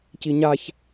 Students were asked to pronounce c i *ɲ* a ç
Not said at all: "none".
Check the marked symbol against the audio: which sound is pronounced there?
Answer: ɲ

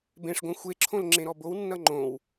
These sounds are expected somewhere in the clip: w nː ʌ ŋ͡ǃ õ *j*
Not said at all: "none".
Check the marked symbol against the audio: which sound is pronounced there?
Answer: w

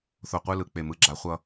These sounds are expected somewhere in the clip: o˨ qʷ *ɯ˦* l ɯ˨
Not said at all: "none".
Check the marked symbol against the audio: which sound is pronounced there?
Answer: ɯ˦˨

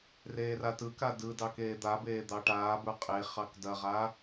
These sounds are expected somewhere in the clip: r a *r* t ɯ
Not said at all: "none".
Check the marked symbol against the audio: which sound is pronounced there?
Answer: none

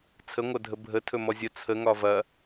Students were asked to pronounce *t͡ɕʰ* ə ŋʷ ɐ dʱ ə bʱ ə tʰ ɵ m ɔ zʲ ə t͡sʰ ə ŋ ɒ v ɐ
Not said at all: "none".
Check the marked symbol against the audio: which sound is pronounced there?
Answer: t͡sʰ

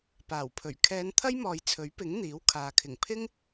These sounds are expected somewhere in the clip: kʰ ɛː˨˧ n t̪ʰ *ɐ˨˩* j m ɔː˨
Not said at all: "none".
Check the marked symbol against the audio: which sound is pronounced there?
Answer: ɐ˥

